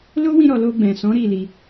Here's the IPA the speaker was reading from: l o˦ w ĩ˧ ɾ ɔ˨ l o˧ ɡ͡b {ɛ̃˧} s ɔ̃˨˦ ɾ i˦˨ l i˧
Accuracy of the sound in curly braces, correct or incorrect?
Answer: incorrect